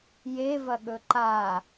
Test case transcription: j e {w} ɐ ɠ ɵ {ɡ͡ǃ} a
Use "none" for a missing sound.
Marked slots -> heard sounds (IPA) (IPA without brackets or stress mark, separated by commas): v, ǃ